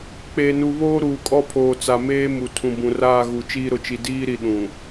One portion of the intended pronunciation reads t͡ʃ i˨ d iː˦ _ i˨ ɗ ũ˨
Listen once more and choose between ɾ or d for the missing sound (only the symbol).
ɾ